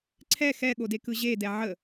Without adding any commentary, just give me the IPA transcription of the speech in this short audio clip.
ǀʰ ɛ x ɛ ɠ o d e k ɯ ʑ e d ɛ ʕ ə

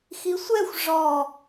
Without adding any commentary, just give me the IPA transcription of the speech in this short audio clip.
x i sʷ ɛ xʷ ʐ ɔ

